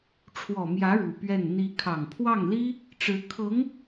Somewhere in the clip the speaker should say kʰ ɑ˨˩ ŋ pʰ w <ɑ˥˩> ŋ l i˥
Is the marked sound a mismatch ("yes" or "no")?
no